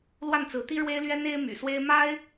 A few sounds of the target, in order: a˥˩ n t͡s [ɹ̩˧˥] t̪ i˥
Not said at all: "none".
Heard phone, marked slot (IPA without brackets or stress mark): ɹ̩˧˥